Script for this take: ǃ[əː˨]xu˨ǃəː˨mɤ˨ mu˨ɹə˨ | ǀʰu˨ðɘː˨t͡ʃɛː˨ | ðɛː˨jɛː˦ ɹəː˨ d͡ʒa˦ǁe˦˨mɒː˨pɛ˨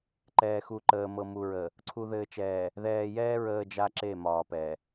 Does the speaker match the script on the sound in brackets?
no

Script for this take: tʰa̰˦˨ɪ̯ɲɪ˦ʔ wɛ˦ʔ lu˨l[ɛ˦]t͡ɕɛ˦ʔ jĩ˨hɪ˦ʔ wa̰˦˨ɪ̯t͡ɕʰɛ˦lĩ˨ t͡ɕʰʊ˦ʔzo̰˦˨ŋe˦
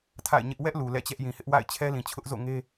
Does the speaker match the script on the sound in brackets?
no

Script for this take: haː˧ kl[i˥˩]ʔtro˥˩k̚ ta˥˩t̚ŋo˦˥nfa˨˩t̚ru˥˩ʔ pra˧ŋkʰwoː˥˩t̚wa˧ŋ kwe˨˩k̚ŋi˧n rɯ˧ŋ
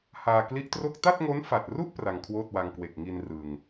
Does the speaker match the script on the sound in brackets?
no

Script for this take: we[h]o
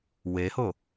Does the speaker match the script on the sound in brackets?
yes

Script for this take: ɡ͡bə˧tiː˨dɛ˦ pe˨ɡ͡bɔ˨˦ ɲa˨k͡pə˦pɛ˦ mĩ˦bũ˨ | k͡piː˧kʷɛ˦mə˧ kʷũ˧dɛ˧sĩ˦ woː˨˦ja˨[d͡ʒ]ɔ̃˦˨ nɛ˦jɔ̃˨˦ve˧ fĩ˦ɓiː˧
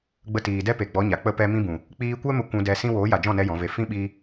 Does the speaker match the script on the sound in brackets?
yes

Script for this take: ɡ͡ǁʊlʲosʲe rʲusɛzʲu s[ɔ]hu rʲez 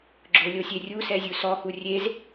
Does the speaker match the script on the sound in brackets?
yes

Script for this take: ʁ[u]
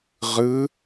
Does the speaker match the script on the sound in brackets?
no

